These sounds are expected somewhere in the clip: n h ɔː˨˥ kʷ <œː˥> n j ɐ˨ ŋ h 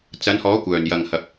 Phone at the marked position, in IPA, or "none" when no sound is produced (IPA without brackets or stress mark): œː˨˩